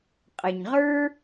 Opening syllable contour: low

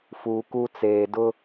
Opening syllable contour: low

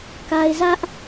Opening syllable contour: low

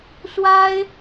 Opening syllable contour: high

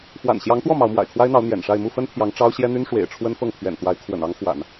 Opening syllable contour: low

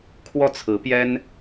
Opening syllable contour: falling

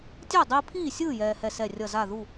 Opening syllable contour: falling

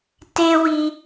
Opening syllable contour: high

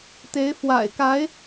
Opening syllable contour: rising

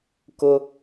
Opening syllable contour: high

